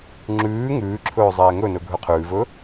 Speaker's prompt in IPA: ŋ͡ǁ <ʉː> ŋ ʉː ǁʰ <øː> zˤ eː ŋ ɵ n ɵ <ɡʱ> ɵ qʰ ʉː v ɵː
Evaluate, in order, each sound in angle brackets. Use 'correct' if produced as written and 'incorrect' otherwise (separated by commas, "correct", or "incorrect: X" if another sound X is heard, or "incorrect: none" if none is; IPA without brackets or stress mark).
correct, incorrect: ɵː, correct